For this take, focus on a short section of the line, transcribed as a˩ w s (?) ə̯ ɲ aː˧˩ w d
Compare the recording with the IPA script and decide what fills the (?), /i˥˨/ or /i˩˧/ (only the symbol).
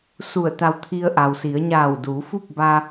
i˩˧